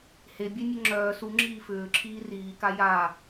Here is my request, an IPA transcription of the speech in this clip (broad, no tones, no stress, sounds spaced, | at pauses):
h e bʲ e nʲ ə ŋ͡ǁ œː s u ŋ͡ǁ iː f ʏː ǁʰ iː r iː k a j a